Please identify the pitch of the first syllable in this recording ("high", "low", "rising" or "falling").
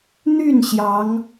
falling